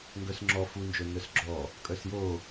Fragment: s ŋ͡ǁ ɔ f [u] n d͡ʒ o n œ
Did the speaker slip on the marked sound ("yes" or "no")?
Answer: no